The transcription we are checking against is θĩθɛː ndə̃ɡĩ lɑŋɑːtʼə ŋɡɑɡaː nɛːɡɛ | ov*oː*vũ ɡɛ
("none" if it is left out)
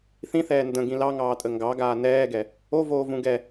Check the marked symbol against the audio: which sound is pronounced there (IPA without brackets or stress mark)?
oː